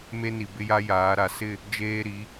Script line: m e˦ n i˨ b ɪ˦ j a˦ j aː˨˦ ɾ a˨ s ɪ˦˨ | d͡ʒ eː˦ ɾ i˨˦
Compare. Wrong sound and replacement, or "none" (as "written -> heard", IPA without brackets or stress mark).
none